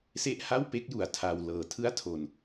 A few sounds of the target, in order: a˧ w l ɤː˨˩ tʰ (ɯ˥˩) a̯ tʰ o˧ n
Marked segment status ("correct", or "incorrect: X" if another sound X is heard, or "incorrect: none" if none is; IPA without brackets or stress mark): correct